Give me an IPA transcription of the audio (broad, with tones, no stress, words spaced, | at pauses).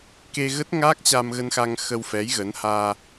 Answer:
ke˧ɣə˦˥t̚ ŋaː˦˥k̚t͡ɕa˧mɣə˧nxa˧ŋ xə˧wfɛ˨˦j ɣə˨˦nhaː˧